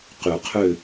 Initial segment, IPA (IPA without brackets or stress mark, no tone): q